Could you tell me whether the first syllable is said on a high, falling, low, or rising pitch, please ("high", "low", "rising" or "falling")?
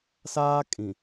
high